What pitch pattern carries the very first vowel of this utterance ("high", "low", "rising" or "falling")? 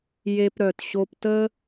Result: high